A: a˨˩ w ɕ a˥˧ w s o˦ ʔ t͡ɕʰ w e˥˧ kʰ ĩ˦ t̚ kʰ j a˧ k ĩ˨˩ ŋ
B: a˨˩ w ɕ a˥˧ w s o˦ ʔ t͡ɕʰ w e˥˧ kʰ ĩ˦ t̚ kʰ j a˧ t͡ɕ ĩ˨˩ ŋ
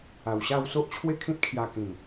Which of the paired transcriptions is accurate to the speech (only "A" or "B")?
A